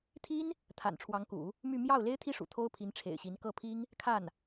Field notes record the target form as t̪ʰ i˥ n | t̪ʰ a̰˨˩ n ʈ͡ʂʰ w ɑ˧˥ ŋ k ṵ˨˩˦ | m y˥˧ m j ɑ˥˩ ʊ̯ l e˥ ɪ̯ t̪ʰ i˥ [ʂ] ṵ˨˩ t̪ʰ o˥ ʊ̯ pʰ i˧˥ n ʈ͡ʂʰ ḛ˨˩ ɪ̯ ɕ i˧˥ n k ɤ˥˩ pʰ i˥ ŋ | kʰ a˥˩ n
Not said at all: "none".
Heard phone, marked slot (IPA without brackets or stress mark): ʂ